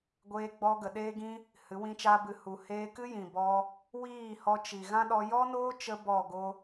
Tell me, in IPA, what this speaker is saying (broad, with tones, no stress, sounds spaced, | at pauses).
ɡʷ eː˧ ɡ͡b ɔ˧ ɡ ə˨ ɗ eː˦ ɡ ĩ˦ | h ɨ˨˦ w ĩ˦ t͡ʃ aː˦ b ɨ˧ h u˨ h eː˧ k ɨ˦ j ĩ˨ b ɔ˧ | w iː˦˨ h ɔ˧ t͡ʃ i˨ ɣ ã˦ ɗ ɔ˧ j ɔ˦ n oː˦ t͡ʃ ə˧ b ɔ˦˨ ɡ o˦